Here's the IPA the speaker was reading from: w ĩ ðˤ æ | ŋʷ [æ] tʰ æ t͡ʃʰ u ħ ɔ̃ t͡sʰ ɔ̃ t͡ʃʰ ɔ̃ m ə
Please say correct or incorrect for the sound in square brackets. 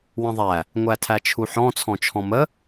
correct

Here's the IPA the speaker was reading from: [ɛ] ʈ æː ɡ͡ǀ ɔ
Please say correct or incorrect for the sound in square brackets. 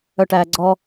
incorrect: œ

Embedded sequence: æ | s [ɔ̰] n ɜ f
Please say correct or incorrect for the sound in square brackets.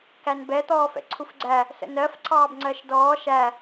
incorrect: ə̰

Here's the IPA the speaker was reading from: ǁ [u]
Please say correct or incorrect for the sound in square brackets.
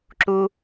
correct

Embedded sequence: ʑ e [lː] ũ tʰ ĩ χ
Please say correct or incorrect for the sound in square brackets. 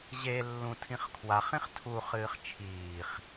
correct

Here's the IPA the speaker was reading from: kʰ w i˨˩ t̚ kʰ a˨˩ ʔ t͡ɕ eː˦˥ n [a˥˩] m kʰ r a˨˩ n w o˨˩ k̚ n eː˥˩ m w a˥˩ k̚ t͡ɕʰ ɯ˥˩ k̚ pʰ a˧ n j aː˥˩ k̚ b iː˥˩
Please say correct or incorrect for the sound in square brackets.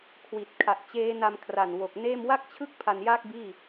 incorrect: a˧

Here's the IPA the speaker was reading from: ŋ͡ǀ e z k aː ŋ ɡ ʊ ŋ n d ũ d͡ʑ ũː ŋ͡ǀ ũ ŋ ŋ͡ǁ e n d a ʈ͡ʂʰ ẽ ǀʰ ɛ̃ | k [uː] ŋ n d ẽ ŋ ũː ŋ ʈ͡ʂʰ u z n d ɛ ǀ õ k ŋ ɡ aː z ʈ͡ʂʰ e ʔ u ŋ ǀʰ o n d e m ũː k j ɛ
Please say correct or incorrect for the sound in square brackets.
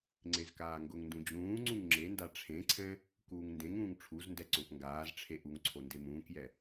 correct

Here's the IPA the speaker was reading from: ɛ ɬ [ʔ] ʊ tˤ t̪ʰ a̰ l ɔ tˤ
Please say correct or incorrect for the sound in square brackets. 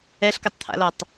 incorrect: k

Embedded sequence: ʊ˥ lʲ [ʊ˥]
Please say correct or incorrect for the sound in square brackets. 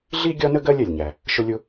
correct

